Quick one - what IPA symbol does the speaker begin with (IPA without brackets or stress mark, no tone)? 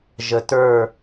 ʒ